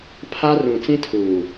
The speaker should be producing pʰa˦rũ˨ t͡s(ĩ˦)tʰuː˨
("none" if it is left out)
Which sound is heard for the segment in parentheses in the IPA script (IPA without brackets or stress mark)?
ĩ˦